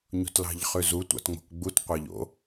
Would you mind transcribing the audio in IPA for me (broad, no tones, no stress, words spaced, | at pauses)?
ɲo̤tlɑ̤ʎχʉzu tʷɑ̰tŋ͡mo̤kɡ͡but qʷɑʎo̰